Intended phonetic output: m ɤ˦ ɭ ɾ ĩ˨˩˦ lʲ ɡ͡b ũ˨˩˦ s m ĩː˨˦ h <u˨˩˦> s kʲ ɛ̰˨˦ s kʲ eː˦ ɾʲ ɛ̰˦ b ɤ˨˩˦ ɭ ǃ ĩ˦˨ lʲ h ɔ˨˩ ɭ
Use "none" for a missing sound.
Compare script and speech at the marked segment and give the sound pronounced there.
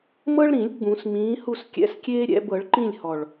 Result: u˦˨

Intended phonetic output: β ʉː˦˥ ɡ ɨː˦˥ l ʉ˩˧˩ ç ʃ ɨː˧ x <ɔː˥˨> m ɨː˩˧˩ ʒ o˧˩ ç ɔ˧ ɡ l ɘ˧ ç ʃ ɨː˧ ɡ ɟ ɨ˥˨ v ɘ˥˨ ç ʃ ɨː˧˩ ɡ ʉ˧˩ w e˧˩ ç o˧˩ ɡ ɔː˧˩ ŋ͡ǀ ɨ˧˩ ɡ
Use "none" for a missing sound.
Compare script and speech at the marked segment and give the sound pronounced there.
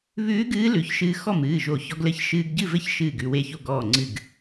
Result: ɔ˥˨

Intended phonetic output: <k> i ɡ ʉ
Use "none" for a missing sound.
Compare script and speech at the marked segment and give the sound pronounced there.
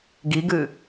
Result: ɡ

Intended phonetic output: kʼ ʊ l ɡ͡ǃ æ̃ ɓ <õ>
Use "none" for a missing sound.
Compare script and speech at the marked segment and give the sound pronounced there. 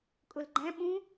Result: ũ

